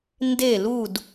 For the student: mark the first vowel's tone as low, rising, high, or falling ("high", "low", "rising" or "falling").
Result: falling